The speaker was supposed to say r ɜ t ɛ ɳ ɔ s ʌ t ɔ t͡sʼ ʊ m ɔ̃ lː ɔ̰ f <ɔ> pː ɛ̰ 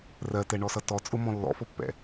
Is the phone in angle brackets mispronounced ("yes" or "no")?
no